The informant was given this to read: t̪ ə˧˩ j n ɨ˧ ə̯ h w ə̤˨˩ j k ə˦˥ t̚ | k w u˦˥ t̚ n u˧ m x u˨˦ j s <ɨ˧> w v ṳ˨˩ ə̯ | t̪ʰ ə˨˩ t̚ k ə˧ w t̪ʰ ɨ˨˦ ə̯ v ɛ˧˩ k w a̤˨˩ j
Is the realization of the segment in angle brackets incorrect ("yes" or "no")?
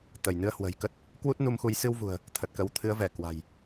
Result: no